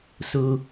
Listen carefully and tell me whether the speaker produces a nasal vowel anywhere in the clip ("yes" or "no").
no